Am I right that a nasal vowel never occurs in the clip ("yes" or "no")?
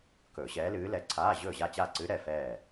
yes